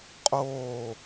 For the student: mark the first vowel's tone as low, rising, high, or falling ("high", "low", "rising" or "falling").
falling